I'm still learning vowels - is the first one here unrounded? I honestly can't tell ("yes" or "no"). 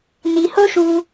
yes